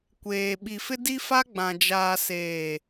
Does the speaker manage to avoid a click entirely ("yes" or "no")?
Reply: yes